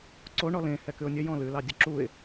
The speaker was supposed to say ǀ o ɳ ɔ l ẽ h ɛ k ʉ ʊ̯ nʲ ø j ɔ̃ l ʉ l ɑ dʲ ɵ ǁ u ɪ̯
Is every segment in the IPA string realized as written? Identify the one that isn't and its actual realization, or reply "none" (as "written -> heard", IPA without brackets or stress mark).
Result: none